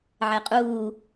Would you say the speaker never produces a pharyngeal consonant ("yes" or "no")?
no